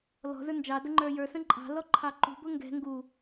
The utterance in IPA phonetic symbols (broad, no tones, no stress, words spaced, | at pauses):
lɔ̤zə˞ nd͡ʒɑdə ŋ͡ǃə˞jə˞sə̃ ǃʼɑ̤lɔ ǃʰɑǃṳbʊ ŋɡɛ̤ ŋɡu